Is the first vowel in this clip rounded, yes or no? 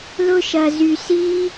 yes